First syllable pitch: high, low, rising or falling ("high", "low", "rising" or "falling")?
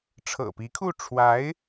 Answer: low